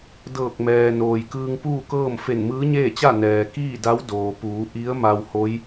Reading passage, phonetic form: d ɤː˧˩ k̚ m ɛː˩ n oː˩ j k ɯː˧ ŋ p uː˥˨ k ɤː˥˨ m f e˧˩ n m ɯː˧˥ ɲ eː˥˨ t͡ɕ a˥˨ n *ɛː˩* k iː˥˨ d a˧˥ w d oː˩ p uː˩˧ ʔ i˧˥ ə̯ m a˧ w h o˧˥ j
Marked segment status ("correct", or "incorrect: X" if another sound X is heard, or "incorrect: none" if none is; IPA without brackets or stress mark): correct